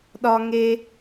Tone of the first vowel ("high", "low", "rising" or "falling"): high